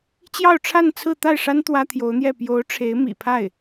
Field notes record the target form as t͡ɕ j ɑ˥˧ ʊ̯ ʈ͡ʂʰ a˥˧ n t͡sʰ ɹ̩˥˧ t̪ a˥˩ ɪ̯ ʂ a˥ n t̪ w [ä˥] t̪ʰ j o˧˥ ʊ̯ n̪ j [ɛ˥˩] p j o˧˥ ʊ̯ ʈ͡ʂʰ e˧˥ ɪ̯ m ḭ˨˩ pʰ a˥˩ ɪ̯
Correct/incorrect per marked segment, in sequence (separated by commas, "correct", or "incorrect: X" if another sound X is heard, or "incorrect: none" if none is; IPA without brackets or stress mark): correct, correct